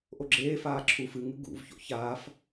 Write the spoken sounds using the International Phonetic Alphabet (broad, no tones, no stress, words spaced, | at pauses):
ʔoɡ͡ǁeːfaː ǁʰu fɨŋɨ ɡṵvço̰ çaːf